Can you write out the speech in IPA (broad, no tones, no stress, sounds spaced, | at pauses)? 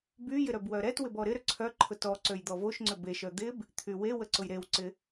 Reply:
b y j ɪ ɾ œ b w œ ɾ ɛ t w ɪ b ɔ ɾ ɪ ɾ ʏ ǀʰ œ ǃʰ ʊ t ɔ ǀ ø j d̪ ɔ v o ʃ ŋ͡ǀ ʏ b e ʃ œ d̪ ɪ b | t̪ʰ y w e w ə ǀ ʊ j ɾ e w ǀ ɪ